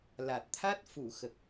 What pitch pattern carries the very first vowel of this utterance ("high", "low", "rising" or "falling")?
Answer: low